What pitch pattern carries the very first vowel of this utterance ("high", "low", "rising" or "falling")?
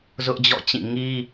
high